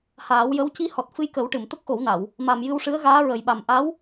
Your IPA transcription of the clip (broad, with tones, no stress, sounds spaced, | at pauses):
h aː˨˩˦ w j ə˧˥ w c i˧˥ h ɔ˨˩ t̚ f ɨ˧ j k ə˨˩˦ w ʈ ɨ˨˩˨ m t̪ ə˦˥ k̚ x o˨˩˦ w n a˨˩˨ w | m a˨˩ m j ɨ˧ w ʂ ɨ˧˥ ə̯ ɣ aː˧˥ ɹ ə˨˩ j ɓ a˨˩ m ʔ a˧˥ w